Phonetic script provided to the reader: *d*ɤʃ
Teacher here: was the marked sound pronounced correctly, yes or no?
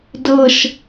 yes